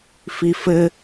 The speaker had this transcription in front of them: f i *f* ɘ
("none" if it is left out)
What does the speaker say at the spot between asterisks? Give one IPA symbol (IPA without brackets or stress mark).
f